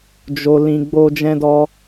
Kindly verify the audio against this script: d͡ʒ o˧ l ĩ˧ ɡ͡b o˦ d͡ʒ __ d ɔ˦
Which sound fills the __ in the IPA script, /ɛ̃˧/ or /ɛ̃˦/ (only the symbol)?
ɛ̃˦